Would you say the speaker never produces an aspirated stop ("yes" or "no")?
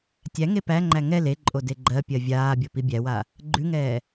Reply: yes